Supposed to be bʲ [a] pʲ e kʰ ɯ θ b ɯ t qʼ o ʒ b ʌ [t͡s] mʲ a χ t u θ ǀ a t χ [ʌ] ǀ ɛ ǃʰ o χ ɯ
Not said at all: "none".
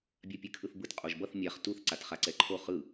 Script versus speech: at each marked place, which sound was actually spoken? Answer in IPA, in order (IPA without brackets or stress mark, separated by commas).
a, θ, a